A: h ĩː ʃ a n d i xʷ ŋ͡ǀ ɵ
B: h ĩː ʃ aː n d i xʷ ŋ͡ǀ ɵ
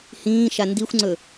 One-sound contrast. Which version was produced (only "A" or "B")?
A